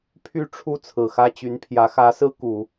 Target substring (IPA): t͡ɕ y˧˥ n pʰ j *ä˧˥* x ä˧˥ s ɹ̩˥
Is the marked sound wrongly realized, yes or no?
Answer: no